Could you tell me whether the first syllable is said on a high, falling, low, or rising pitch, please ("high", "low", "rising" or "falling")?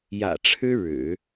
low